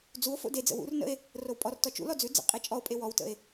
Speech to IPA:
d͡zuo̯fo̰ ded͡zə̰ wṵrnə̰e̯ | rowpʼɔrtɔ t͡ʃṵlɔ d͡zʉ d͡zə̰ qʼet͡ʃʼɔo̯pʼe wɔwtə̰e̯

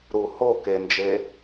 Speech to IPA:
ɾu ho kend͡ʒe

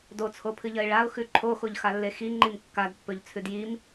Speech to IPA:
dot͡sʰopʰɨʎɐɪ̯ ɭaʊ̯ xʉǃʰoxoʎ xalːexiŋ͡ǃim kːadpːɵʎ t͡sʰʉdjim

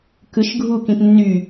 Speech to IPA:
kɯʃ ɡʱukĩp nːy

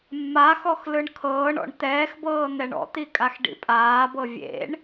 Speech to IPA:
mːaxɔx lɯɳkʰɤːɳɔ̰ɳ t̪ɛːxbɤː n̪ɛɳɔ̰t̪i kʼaxɖḭpʼaːbɤ vʲḛɳ

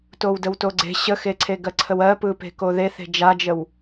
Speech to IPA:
towdəwtoɡ͡ǀe̤ ɕəxeǀʰe ɡɜǀʰəwɜ pɯpe̤koðe θe̤d͡ʒad͡ʒəw

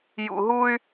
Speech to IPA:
jṵ˨ɦu˦y̯

